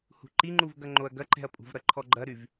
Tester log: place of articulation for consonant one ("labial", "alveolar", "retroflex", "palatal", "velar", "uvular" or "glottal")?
glottal